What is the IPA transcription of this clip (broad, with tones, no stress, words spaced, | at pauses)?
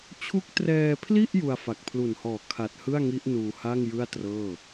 t͡ɕʰu˦˥k̚trɛː˧pʰli˥˩ʔ ju˧a̯fa˨˩k̚pʰlu˨˩nhɔː˨˩ kʰa˨˩t̚hɯ˥˩a̯ŋi˦˥ʔ nuː˧ ha˥˩ŋ jɯ˥˩a̯trɤː˥˩